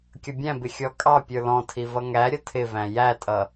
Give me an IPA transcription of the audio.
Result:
kʲ ʌ bʲ æ̃ b ɪ xʲ ɔ kʼ ɑ pʲ ə˞ l ɔ̃ tʰ i v ʌ ŋ æ ɾʲ ʌ tʰ ɪ v æ̃ j æ tʼ ʌ

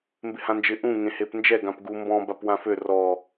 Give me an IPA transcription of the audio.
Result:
m b ɪ h ã n d͡ʒ ɪ ʔ ũ ŋ ẽ h e p n d͡ʒ ɛ ɡ ã p ɡ u m b ɔ̃ b a p w ã f ø r ɔ

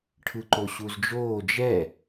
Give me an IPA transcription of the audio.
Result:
ʈʰ ɯ ǃ o ɕ u z d͡ʒ oː d͡ʒ ɛ

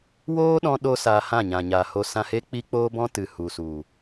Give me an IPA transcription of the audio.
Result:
w oː˦ ɗ ɔ̃˧ ɗ o˧ s aː˧ h ã˦˨ ɲ ã˨ ɲ aː˨ h o˧ s ã˧ h e˦ k͡p i˦ k͡p oː˦ b ɔ̃˦ t ɨ˨ h u˨ s u˨

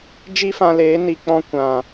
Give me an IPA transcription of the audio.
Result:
d͡ʒ i˦ f ã˧ l eː˨˦ n i˨ k͡p ɔ̃˧ kʷ ã˨

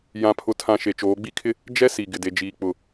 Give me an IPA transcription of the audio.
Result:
j ã˨ pʰ ʊ˨ tʰ ã˨ ʃ e˨ t͡ʃ oː˨˦ ɡ͡b i˦ kʰ ɪ˦ | d͡ʒ ɛ˦ s i˨ ɡ ɪ˨ d e˨ d͡ʒ iː˨ k͡p ʊ˨

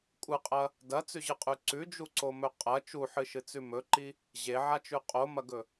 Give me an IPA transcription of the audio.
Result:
kʷʼ ɨ qʼ ɐ | d ɐ t͡s ʉ ʑ ɨ qʼ ʉ ǀ ʉ d͡ʒ u ǀ o m ɵ qʼ ɐ t͡ʃ u ħ ɨ ʃ ɨ t͡s ʉ m ɵ ǃ i | ʑ e ʕ a t͡ʃ ʉ qʼ o m ɐ ɡ ɵ

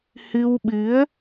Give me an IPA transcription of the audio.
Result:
h ɨ˧ w ɓ ɨ˨˦ ə̯

